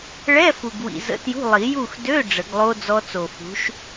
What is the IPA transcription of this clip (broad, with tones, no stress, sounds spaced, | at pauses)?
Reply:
ɭ ɛ˧˥˧ f u˨ ɡ w ḭ˨ z ə̰˧˥˧ t j ṳ˧˥˧ lˠ i˨˩˦ j u˦˨ x d ø˧˥˧ ɖ͡ʐ ə˨˩˦ ɡ lˠ o˦˥ d͡z ɔ˦˥ t͡s o˨ f ṳ˨˥ ʃ